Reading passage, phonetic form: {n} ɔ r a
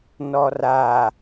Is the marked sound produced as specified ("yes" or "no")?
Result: yes